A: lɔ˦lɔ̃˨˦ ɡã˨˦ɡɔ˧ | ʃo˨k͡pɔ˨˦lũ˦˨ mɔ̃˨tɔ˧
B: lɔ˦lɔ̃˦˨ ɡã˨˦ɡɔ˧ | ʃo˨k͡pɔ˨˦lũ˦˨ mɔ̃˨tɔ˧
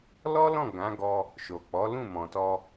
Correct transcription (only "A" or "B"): B